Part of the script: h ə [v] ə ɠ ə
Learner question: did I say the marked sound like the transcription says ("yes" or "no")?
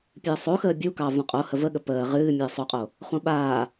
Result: yes